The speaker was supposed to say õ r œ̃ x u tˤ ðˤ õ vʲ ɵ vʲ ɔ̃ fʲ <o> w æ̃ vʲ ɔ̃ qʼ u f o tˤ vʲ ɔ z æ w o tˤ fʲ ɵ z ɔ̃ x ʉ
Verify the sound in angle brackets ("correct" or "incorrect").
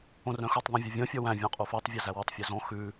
incorrect